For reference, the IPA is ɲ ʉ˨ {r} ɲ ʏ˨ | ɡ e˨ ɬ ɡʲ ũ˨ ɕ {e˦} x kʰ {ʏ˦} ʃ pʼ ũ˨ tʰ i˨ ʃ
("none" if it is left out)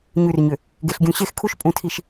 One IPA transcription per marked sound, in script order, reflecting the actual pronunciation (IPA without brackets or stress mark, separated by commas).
r, e˦, u˦